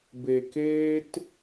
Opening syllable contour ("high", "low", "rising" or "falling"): low